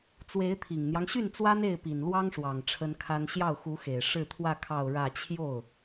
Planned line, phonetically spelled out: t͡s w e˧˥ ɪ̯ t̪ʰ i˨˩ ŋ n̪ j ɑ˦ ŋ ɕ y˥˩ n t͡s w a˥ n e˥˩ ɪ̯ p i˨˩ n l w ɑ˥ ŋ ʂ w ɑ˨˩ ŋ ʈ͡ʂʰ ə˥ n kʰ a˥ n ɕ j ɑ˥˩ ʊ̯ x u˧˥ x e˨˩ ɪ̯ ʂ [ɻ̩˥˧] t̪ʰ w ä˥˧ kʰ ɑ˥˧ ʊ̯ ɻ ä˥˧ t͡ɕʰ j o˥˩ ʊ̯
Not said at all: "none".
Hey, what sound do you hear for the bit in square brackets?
ɻ̩˥˧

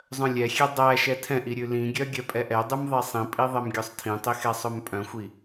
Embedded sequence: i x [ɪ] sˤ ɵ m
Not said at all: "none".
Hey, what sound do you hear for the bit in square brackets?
ɛ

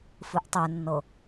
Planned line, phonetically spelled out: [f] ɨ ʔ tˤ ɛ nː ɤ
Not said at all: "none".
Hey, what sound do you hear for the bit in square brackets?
f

